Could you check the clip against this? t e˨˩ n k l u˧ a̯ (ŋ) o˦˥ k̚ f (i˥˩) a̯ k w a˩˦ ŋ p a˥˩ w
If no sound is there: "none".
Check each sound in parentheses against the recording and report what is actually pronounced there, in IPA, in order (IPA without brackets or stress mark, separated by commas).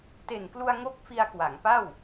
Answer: ŋ, i˧